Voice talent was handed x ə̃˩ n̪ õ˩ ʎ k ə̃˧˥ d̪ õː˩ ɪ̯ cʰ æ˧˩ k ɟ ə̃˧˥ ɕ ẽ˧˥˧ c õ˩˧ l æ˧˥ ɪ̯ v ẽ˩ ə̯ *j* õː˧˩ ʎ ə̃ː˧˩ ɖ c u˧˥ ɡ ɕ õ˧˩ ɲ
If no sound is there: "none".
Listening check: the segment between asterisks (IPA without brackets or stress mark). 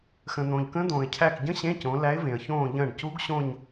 ç